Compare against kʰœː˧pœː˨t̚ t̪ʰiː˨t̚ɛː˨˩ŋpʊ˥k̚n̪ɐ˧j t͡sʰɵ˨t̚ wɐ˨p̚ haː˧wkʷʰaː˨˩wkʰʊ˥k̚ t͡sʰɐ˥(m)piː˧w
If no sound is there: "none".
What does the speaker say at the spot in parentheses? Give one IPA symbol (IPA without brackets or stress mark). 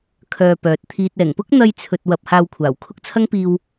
ŋ